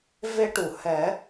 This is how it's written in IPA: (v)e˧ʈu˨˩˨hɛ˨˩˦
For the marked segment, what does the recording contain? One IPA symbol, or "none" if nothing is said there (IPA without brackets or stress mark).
v